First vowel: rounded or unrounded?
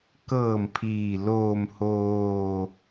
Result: unrounded